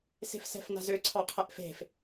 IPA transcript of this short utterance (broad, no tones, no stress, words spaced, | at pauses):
se̤fsɛ̤fna̤zø ǀʰɑqʰɛʔfe̤f